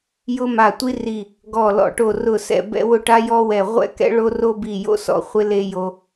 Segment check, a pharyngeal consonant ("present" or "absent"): absent